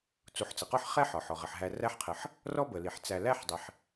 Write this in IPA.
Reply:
t͡s u˨ ħ t͡s ə˩ q ɔ˦ ħ χ ɛ˥ ħ ɒ˩ ħ ɔ˩ ʁ ə˩ ħ ɦ æ˨ r æ˦ ħ qʰ ə˨ ħ | r ɔ˦ b ə˩ l i˩ ħ t͡s æ˨ l æ˦ ħ dˤ ɪ˨ ħ

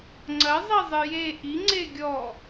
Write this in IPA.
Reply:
ŋ͡ǀ ɐ zˤ i zˤ ɨ j e ʔ i ŋ͡ǀ e ɡʲ ɔ

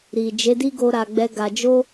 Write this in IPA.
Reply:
ɾ i˨ d͡ʒ e˨˦ d i˦ ɡ o˦ ɾ a˧ ɡ͡b ɛ˦ ɡ a˧ d͡ʒ o˦

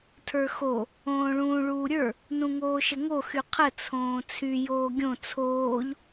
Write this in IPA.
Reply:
tʰ ə˞ x o | õː ɭ ũː ɭ uː ɾʲ ə˞ | n ũ ŋ oː ʃ ə ŋ o x y qʰ ə t͡sʰ õː t͡sʰ y j oː ɡʲ õ t͡sʰ oː ʎ

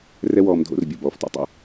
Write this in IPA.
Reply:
r ɛ˦ w ɔː˧ m dʱ o̰˧ r bʲ o˨ b ɔː˨ f t ɔ̰˦ tˤ ṵ˧

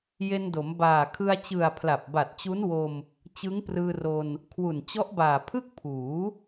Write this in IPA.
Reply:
j e˧ n d o˩˦ m b aː˨˩ kʰ ɯ˧ a̯ t͡ɕ ɯ˨˩ a̯ pʰ l a˨˩ p̚ b a˨˩ t̚ t͡ɕ u˦˥ n w o˧ m | t͡ɕ ɯ˦˥ ŋ p r ɯː˧ r o˧ n | kʰ w u˨˩ n t͡ɕ ɔ˦˥ ʔ b aː˨˩ pʰ ɯ˥˩ k̚ pʰ uː˩˦

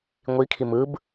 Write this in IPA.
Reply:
ŋʷ i kʰ i m ɯ b

